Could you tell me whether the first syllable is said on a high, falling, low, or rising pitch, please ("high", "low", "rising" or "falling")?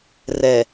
low